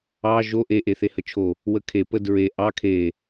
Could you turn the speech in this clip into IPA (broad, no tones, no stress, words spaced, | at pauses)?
ɑ ʒo ʔe ʔeθehət͡ʃʰo | wəkʰe pədɹe ʔɑ kʰe